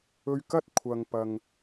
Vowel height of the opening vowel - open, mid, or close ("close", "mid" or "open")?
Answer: mid